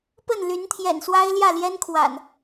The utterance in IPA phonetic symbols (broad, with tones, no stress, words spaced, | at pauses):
pə˥˨nly˨˦nt̪ʰjɛ̰˨˩n swa˦ɪ̯ljä˥˨ljɛ˦nkʰwa̰˨˩n